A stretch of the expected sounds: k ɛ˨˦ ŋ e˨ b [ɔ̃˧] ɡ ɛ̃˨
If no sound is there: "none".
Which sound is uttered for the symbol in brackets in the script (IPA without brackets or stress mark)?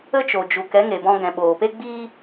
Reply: ɔ̃˧